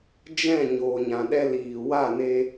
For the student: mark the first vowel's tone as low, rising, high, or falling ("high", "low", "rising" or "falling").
falling